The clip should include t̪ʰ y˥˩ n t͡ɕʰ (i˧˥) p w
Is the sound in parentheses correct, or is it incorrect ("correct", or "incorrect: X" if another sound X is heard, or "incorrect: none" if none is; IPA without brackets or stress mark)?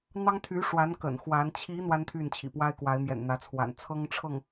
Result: incorrect: ḭ˨˩